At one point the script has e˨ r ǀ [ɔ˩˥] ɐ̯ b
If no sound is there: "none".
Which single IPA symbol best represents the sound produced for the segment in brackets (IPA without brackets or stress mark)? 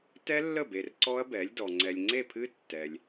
ɔ˦˥